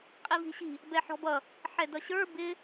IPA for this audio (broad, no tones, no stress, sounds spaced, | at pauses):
qʼ i v i̤ ɕ i̤ | b ɛ ħ ɔ̤ b ʌ | ħ ɛ d ʌ ɕ ə˞ b ɪ